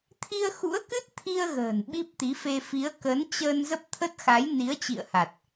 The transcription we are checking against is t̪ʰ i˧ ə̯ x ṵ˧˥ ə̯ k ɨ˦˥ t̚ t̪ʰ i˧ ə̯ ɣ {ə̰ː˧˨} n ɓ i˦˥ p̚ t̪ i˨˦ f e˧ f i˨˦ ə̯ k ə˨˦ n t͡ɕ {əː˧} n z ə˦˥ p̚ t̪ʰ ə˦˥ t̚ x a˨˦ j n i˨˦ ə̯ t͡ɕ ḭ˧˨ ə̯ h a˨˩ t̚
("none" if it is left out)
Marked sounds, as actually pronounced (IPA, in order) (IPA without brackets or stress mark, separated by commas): ə̤ː˨˩, əː˧